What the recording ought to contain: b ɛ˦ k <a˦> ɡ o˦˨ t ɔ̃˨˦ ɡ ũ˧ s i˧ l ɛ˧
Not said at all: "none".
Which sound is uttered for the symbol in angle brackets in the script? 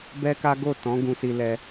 a˦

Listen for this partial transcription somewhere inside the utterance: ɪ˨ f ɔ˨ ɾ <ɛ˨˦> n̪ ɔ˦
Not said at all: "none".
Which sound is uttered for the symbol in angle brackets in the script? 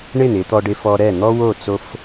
ɛ˦˨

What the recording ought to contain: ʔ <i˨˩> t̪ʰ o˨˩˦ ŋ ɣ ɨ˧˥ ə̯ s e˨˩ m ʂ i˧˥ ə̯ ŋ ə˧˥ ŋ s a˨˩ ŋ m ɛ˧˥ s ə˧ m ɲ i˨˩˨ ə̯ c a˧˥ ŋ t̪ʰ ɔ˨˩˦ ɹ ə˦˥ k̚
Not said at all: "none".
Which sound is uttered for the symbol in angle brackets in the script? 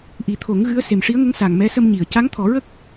i˨˩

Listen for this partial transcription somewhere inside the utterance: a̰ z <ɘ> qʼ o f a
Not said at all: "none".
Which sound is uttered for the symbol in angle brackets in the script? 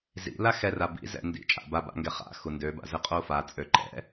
ɘ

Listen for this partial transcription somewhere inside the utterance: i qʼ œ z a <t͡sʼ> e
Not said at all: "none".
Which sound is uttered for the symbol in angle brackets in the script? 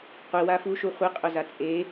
t͡sʼ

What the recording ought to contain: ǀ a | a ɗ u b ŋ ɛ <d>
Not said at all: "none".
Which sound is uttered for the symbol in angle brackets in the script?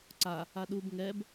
b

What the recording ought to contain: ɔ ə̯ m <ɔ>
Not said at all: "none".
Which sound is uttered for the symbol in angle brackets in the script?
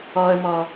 ɔ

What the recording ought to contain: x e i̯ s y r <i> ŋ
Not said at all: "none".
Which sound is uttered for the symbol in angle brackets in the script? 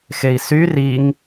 i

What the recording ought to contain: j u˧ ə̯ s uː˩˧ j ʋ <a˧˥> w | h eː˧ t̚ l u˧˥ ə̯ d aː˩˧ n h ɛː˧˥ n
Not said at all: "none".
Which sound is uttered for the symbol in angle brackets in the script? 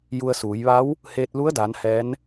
a˧˥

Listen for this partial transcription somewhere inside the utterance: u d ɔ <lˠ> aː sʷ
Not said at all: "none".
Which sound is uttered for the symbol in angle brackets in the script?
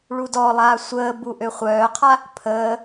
lˠ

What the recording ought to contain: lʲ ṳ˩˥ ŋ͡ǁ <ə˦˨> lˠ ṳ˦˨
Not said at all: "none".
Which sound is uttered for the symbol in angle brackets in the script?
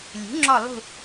ɔ˦˨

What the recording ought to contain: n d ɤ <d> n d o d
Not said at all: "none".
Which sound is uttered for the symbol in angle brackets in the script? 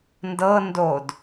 none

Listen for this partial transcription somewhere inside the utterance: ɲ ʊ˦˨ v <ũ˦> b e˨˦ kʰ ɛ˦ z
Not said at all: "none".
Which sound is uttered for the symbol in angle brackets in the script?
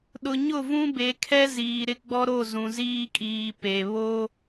ũ˦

